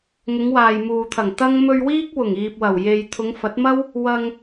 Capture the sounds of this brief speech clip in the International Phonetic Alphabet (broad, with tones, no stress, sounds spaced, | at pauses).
ŋ ʊ˨˧ ŋ w aː˨ j m uː˨ t̪ʰ ɐ˨˩ ŋ t̪ ɐ˥ ŋ m ɵ˧ ɥ w iː˥ k̚ w ʊ˨˩ ŋ iː˨ p̚ w ɐ˨˩ w j e˨ j t̪ʰ ʊ˨˧ ŋ f ɐ˨˥ t̚ m ɐ˥ w | w ɐ˧ ŋ